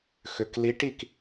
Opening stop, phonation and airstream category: plain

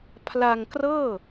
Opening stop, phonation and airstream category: aspirated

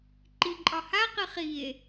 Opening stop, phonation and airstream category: click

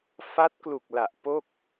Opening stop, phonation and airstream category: plain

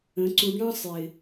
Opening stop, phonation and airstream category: click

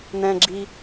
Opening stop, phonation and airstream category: click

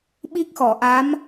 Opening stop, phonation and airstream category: implosive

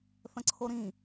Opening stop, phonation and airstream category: click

